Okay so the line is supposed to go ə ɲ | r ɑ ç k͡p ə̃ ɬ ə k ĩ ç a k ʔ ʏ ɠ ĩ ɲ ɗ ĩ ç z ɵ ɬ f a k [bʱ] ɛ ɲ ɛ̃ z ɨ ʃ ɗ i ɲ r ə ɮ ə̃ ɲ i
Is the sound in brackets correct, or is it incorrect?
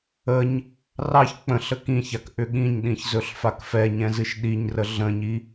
incorrect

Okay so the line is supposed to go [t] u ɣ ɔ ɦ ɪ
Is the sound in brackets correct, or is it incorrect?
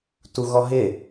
correct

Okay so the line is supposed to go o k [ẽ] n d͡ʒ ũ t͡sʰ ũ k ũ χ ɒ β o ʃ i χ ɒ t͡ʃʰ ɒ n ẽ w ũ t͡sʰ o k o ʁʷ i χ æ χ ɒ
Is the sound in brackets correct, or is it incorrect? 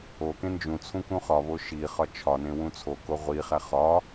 correct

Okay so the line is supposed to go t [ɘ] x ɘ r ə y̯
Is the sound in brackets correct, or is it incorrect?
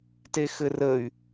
incorrect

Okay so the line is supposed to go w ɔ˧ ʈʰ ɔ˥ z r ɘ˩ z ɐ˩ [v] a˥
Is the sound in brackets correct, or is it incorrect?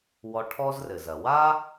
incorrect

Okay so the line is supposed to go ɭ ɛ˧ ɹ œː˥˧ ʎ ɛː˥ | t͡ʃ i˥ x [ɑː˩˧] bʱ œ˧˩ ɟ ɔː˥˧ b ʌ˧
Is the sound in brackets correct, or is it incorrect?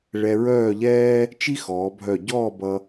incorrect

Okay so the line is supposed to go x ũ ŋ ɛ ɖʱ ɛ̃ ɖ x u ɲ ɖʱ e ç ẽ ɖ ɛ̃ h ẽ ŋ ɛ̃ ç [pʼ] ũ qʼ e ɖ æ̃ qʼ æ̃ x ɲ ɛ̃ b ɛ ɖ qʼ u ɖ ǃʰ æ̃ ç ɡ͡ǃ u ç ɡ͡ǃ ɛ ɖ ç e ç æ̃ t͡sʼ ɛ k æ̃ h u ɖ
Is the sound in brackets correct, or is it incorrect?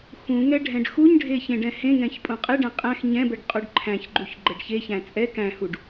correct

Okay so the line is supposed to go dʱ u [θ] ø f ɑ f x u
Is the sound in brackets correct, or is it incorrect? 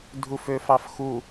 incorrect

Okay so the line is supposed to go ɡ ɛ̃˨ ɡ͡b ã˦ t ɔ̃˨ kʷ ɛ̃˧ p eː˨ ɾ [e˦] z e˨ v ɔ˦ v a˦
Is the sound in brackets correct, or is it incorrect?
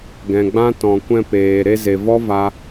incorrect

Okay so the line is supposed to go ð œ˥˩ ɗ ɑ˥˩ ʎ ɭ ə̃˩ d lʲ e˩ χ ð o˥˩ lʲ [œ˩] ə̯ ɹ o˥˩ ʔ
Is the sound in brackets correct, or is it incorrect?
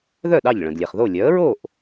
incorrect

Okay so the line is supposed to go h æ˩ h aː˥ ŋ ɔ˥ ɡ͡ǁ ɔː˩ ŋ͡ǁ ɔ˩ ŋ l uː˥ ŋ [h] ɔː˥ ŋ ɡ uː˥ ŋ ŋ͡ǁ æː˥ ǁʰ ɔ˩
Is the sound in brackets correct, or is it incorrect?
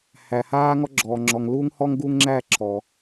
correct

